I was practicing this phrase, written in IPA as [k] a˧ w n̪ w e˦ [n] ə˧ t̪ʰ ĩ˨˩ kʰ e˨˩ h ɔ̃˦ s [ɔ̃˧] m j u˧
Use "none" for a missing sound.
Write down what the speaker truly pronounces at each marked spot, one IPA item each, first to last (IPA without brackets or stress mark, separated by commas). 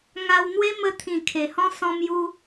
ŋ, m, ɔ̃˧